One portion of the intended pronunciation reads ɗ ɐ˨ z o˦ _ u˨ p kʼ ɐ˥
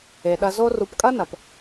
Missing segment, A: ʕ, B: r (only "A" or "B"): B